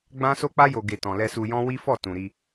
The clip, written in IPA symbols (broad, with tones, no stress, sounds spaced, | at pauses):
ɡ͡b ã˦ s o˦ k͡p a˦ j o˧ ɡ e˧ t ɔ̃˨ l ɛ˧ s u˧ j ɔ̃˦ w i˦ f ɔ˦˨ t ũ˨ ɾ i˧